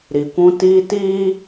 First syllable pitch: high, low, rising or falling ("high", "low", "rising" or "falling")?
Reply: low